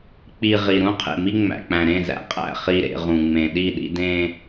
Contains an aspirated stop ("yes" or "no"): yes